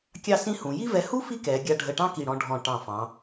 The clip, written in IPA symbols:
kʲ ɑ˥˧ s ĩ˥ h ũ˩˧ j i˥ v ɛ˧ h u˥ f i˥ k ɛː˩˧ ɡʲ a˧ ɖʱ ə˧˩ ʈ ɑ̃˥ k i˧˩ ɽ ɔ̃˧ ɖʱ ɔ̃˧˩ ʈ ɑ̃˧˩ f ɑ̃˩˧

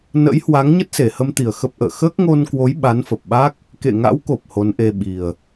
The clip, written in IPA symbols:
n ə̰˧˥ j h w a˨˦ ŋ ɲ ə˦˥ t̚ s e˨˩ h ə˧ m t̪ i˨˩ ə̯ x ə˦˥ p̚ ʔ ə̰ː˧˨ x əː˦˥ k̚ ŋ o˧ n k w o˨˦ j ɓ a˨˦ n f ə˨˩ p̚ ɓ a˦˥ k̚ | k ḛ˧˨ ŋ a̰˧˥ w k o˨˩ p̚ h o˨˦ n ʔ e˧ ɓ i˨˩ ə̯

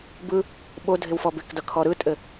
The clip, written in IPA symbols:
b ɯ | ɓ o dʱ ɪ w f ɔ b ɪ k d ʌ kʰ ɔ ɾ ɯ tʼ ɘ

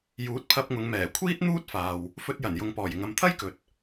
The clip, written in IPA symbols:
j uː˨˥ t̚ pʰ ɐ˧ p̚ ŋ ʊ˨˧ ŋ m ɛː˨˩ kʷʰ iː˥ t̚ n̪ uː˥ t̚ f aː˨ w | f ɵ˧ t̚ j ɐ˨˩ n j ʊ˨ ŋ p ɔː˨˩ j ɪ˨ ŋ ɐ˨ m t̪ʰ ɐ˥ j k ɵ˨ t̚

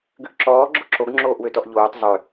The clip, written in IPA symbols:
ɡ ʉ ʔ ǁ ɔː ɡ͡ǁ o ǁ o ɡ ŋ͡ǁ oː ʔ w ø t ɔ ʔ ʎ oː tˤ zˤ ø

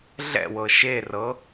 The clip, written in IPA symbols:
ɮ ɛ̰ w ɤ ʃ e r ɤ

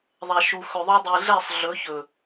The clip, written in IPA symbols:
ðˤ ɛ˨ ʃ u˨ x ɵ˨ ðˤ u˧ dˤ i˨ ɮ ɛ˦˨ sˤ ɮ ɵ˨˦ ç ɵ˨

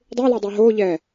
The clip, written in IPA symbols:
dˤ ɪː l ɛ dˤ ɪː ɦ oː ʎ ɛː

